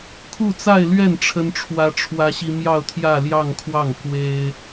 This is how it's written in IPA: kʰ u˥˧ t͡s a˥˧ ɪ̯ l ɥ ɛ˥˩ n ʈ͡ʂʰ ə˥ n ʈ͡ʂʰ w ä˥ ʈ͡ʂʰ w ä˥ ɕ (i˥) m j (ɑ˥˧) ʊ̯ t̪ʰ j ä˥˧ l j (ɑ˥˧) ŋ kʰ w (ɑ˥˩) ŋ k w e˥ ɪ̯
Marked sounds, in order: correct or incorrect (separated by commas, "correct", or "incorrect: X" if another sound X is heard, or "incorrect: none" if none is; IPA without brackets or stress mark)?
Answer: correct, correct, correct, correct